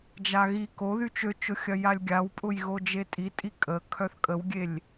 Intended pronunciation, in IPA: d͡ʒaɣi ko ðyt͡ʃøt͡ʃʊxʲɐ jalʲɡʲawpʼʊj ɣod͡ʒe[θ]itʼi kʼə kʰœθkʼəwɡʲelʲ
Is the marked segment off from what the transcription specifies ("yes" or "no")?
yes